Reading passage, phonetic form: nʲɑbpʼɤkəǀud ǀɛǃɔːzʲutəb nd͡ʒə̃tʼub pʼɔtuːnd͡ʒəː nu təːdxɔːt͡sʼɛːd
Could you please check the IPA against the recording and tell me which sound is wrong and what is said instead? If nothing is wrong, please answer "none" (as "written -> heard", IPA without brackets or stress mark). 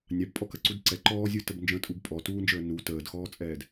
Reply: ɤ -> ɔ